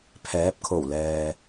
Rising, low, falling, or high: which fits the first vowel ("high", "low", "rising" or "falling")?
rising